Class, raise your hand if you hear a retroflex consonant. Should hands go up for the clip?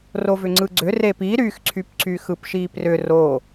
no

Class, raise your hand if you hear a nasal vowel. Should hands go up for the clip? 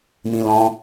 yes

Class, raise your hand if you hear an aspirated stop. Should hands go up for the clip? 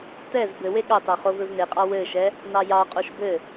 no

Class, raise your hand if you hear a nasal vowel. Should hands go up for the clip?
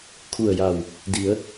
no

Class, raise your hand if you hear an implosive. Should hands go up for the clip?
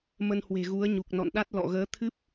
yes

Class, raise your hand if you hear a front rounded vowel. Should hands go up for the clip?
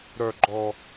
yes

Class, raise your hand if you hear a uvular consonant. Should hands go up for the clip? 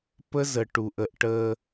no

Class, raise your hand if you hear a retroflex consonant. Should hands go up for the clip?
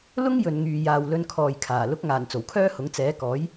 no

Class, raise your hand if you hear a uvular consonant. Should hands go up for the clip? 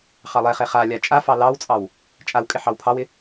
yes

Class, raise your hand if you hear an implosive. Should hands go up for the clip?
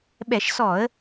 yes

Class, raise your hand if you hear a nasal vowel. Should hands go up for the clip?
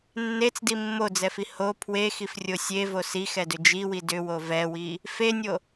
no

